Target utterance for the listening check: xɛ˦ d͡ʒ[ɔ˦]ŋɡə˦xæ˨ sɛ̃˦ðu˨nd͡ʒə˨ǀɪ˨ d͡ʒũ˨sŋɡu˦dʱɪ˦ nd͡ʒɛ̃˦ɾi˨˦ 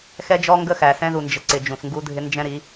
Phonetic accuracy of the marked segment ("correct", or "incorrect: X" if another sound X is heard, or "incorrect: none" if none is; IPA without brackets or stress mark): correct